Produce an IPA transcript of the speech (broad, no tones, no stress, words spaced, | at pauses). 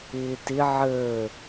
ɪːtɪ ʕəː